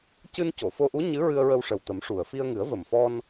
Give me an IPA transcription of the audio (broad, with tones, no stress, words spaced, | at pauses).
cɨ˧nco˨˩˨fo˧ʔu˧˥ ɲɨ˧˥ ɹɨ˧ə̯ɹə˧wʂə˨˩wt̪ə˨˩˦m ʂu˨˩ə̯ fi˧ə̯ŋɨ˨˩˦ə̯və˨˩mfɔ˧n